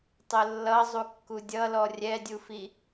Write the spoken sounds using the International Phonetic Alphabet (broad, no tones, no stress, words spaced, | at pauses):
tˤʊlːʌ zˤukːudʲʌlɔ rʲɛdʲufi